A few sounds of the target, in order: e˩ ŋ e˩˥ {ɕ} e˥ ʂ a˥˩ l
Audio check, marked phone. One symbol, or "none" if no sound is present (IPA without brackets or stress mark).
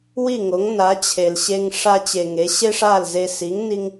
ɕ